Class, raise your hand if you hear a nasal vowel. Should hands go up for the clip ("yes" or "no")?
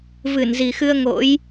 no